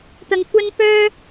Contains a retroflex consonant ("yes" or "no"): no